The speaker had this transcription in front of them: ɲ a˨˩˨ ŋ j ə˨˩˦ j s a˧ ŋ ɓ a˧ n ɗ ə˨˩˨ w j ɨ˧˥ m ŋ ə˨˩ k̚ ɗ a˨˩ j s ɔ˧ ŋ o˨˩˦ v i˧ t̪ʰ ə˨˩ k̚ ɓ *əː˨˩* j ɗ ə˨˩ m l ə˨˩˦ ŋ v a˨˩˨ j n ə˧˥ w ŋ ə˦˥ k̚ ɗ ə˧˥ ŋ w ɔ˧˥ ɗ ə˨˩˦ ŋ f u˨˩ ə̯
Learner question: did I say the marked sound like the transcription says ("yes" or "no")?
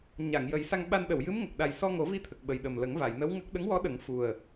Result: no